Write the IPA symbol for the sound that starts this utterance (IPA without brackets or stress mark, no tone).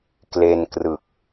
k